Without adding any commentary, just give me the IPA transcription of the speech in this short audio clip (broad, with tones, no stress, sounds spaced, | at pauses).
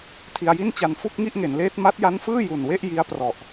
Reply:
tʰ i˧ a̯ j i˥˩ n t͡ɕ a˧ n f u˥˩ k̚ ŋ i˥˩ ʔ ŋ e˩˦ n l eː˦˥ t̚ m a˦˥ t̚ j a˦˥ n f ɯː˥˩ j u˨˩ n w e˥˩ ʔ j i˦˥ a̯ p r ɔ˨˩ ʔ